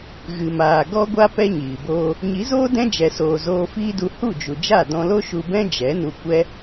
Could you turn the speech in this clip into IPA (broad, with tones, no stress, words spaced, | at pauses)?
ɣɨ˨maː˨ ɡɔ˦ɡʷa˦ pɛ˦ɲiː˨boː˦ | ɲi˨˦zoː˦ dɛ̃˦d͡ʒɛ˨soː˨ zoː˧fiː˦du˧ hu˦˨d͡ʒu˨d͡ʒa˦˨ dɔ̃˧lo˦ʃu˧bɛ̃˦ d͡ʒɛ˨˦nu˧kʷɛ˦